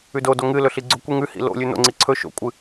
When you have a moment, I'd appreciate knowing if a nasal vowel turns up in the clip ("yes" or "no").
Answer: no